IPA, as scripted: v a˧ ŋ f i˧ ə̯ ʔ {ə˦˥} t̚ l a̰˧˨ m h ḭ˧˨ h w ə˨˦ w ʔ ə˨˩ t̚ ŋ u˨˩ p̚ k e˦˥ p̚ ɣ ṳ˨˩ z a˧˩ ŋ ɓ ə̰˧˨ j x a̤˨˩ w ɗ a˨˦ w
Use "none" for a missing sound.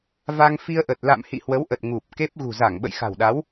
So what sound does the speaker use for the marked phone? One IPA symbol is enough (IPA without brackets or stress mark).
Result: ə˨˩